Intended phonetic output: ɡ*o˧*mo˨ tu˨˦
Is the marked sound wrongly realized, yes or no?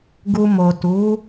yes